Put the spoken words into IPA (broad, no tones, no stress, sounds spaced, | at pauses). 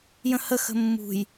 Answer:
j ə̃ h ə x ə̤ mː ṳ j